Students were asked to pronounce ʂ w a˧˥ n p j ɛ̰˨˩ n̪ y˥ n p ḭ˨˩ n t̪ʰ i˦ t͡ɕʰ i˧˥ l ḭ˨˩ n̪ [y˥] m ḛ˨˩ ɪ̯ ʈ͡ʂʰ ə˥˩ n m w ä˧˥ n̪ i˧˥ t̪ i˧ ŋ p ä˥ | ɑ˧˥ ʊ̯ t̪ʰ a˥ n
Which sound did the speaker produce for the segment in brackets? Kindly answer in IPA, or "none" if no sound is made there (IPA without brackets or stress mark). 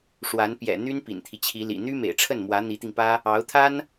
y˥